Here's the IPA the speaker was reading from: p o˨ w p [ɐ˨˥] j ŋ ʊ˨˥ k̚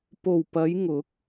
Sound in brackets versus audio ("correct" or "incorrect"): incorrect